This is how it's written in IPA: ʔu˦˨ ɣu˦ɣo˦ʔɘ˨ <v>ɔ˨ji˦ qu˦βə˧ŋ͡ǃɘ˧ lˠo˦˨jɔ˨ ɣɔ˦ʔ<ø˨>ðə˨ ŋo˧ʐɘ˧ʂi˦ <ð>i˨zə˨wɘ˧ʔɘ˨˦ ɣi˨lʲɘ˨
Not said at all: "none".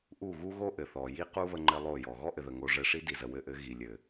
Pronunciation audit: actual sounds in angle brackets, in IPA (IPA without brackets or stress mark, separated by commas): θ, ɘ˨, d